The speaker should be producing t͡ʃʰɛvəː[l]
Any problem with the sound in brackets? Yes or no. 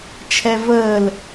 no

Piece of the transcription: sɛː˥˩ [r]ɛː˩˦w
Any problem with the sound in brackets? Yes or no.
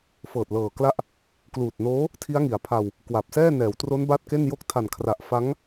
yes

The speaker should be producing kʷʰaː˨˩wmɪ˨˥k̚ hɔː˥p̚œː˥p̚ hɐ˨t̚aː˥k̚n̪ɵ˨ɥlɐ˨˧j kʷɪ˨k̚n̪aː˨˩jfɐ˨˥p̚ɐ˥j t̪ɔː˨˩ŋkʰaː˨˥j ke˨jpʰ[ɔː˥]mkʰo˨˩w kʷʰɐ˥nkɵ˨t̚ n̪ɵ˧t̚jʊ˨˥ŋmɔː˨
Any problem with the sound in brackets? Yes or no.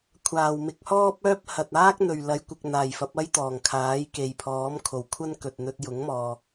yes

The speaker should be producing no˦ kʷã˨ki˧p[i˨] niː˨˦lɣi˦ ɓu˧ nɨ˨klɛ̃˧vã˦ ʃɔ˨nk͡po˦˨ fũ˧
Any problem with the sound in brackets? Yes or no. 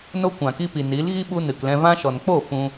no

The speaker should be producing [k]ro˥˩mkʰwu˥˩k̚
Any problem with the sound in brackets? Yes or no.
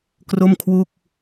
no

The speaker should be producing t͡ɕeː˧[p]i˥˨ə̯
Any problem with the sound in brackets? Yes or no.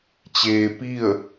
no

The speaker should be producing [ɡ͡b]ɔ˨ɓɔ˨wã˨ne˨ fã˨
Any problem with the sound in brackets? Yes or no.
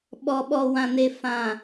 yes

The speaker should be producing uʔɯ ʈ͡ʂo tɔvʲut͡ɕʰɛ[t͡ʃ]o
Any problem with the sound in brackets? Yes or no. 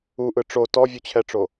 yes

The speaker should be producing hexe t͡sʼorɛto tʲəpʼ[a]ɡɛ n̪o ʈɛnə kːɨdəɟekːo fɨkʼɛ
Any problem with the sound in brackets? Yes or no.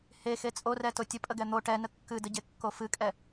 yes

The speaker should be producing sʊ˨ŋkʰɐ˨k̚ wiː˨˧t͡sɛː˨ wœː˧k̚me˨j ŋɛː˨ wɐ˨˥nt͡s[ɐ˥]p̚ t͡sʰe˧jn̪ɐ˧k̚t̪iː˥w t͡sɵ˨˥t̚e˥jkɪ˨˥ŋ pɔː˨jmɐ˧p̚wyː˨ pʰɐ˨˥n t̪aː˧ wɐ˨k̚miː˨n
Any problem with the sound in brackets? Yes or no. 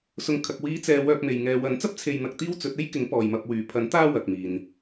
no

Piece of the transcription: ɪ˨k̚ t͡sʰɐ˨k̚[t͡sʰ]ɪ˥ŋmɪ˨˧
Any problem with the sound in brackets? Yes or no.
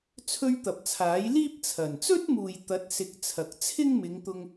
no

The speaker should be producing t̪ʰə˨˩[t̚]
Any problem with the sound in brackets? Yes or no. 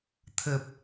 yes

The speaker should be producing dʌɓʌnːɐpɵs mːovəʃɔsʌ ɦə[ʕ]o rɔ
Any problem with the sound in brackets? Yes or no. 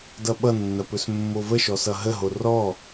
yes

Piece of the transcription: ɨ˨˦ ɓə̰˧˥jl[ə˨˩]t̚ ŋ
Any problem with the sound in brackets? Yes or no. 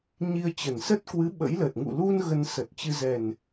no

